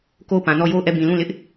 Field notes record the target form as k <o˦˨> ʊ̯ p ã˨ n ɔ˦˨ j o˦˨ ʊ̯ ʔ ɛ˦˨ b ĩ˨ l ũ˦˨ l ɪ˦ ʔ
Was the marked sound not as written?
no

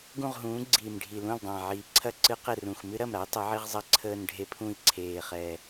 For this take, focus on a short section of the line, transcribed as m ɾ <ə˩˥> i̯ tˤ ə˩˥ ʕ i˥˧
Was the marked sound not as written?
yes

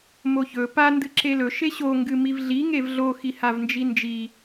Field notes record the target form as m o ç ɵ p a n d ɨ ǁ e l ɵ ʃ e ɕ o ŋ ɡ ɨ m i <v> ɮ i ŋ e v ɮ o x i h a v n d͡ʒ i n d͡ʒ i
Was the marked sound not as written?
no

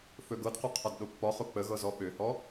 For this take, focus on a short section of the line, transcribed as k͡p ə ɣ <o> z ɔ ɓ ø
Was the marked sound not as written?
yes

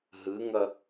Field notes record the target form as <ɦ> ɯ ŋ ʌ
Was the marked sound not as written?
no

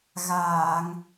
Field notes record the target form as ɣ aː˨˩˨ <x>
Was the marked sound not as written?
yes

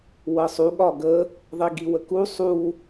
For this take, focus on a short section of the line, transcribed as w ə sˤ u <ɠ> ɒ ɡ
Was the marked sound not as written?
no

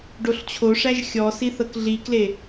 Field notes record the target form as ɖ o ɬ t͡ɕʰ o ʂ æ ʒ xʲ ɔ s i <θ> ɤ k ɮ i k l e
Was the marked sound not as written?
no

